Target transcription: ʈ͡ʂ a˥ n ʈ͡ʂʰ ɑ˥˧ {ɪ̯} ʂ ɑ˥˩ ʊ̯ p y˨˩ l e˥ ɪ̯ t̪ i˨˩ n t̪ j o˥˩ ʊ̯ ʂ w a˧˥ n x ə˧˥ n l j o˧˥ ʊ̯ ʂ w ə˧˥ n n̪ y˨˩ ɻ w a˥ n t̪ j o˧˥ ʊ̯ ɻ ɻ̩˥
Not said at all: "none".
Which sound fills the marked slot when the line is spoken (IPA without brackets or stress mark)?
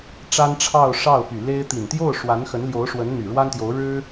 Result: ʊ̯